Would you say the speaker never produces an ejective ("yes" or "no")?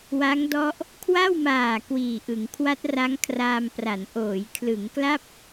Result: yes